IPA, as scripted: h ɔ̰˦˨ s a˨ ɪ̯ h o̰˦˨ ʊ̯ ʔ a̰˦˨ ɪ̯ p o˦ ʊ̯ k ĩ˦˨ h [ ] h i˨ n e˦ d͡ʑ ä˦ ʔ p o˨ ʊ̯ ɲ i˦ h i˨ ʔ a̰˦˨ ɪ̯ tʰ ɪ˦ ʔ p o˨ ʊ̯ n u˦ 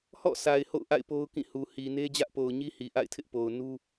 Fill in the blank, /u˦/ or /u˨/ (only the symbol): u˨